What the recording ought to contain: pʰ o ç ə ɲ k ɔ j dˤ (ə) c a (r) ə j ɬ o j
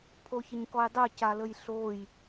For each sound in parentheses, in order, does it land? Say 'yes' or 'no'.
no, no

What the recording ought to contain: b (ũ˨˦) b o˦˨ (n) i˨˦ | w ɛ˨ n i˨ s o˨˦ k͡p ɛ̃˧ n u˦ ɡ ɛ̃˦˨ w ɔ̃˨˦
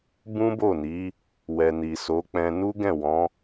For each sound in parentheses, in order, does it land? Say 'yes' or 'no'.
no, yes

